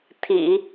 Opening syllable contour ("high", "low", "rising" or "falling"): low